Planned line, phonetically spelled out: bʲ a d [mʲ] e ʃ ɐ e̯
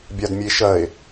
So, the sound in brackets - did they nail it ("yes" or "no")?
yes